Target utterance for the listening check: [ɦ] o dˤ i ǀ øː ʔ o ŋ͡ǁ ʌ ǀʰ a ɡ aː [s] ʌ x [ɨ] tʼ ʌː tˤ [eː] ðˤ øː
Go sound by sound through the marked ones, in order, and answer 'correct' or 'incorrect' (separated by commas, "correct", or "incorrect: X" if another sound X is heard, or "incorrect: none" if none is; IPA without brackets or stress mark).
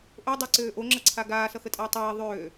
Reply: incorrect: ʔ, correct, incorrect: ə, correct